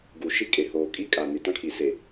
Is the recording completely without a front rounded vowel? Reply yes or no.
yes